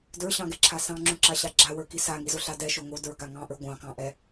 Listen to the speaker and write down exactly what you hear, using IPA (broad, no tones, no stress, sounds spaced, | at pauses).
d ə˞ ɕ ɑ̃ ɡ ɛ ǁʰ a s ɑ̃ ŋ͡ǁ ũ ǁ a ɕ a ɡ͡ǁ a w ə˞ k i s a ŋ i z o ɬ a d ɛ ʃ o ŋ o d ə˞ ɡ a ŋ ɑ̃ ʔ ə˞ ɡʷ ɑ̃ k ɑ̃ ʔ ɛ